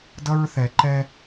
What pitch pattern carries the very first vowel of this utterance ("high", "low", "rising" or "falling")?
high